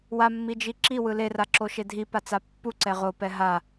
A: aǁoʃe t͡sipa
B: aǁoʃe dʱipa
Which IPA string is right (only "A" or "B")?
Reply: B